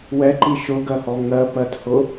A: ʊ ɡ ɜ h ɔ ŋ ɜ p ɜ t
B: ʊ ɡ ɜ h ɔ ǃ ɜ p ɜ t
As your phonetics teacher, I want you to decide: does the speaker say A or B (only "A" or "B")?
A